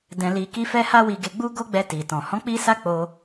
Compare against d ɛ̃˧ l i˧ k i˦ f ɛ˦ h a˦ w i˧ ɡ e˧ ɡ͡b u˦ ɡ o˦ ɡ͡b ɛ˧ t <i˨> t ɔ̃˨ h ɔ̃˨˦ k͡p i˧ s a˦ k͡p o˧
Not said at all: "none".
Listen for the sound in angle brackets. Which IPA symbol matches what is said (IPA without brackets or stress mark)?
i˨